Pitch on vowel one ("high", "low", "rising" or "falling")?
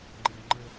low